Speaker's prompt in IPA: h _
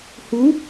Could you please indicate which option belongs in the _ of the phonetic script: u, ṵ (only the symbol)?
u